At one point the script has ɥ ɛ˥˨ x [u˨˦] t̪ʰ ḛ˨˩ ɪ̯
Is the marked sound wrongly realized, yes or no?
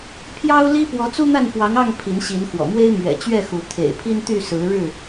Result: no